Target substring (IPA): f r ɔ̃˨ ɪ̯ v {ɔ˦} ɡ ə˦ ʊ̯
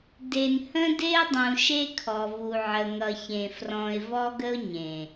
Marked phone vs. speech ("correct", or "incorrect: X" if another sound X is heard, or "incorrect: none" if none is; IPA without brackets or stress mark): correct